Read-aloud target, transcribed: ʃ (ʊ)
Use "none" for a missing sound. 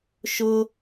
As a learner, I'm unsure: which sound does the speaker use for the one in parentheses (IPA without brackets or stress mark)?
ʊ